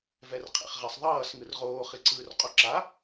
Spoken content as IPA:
vɛrqʰḛχʁɛsˤðˤʌːs ŋɯrʁoː χiǀɯːrqʼoǁa

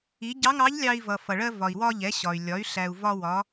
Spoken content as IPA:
i˩˧ ɟɑ˧˥ŋɑ˧˥ʎlʲɑ˧i̯vʌ˩ fʌ˩ɭɜ˧ vɒ˩i̯wɒ˧ ʎɛ˩˧ɕɒ˩y̯lʲɒ˩˧y̯ ɬæ˩u̯ vɒ˧wɒ˩˧

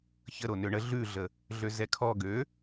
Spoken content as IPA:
çəɾo nøɳə ɮʉɮə | ɮøzɛkʰɔ ɡø

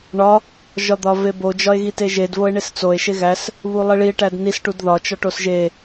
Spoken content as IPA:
ɳɒ | ʒɒd̪ɒvebo d͡ʒɒe̯ɣiteʒed voe̯ɳest͡soe̯ ʃeɣæs | βulˠiɭie̯ ʈædnis ʈudðɒ t͡ʃɒʈosʒe

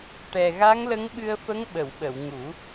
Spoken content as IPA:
ʈɛ˨˩ ɣa˧˥ŋlə˧˥ŋɓɨ˧ə̯fə˧˥ŋ ɓə˨˩˨wɓə˨˩˨w ŋu˨˩˦

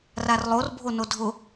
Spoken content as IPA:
rarlˠor bʱonodʱʊ

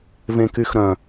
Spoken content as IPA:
vẽkyxɾœ̃

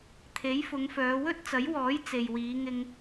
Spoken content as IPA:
t̪ʰe˨˥jfʊ˨˧ŋfœː˨˧ wɵ˥t̚t͡sɐ˨˥jwɔː˨˥j t͡se˨jwiː˨˧ ŋɪ˧ŋ

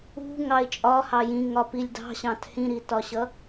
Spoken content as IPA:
ṳ ŋɑɪ̯t͡ʃʼɒhɑ jĩŋɒ pilʲdɑ̤ɕɑ̃t hĩɾitɒɕʌ

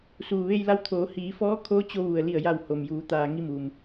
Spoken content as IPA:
suː˩ʋe˧jla˧wt̪ʰoː˩˧ hiː˩˧fɔː˧˥kʰoː˧˥ t͡ɕo˧ʋu˩ə̯ li˧˩ə̯ja˧˩w ho˩mjuː˩˧ t̪aː˩ ŋi˧muː˩m

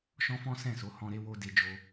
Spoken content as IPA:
ʃɔ̃˦fɔ̃˦ sɛ̃˦˨so˨˦ hɔ̃˧ ɾe˧wo˧ de˧d͡ʒo˧

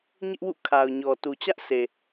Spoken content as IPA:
ɲɪ˦ʔwṵ˦˨ kʰa˨ʊ̯ɲɔ˨ tu˨t͡ɕä˦ʔse˨

